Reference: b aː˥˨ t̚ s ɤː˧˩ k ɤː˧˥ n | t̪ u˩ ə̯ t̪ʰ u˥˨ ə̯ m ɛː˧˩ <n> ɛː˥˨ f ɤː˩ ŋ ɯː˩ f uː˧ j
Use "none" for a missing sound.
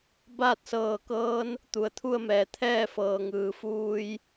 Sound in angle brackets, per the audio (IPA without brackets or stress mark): t̪ʰ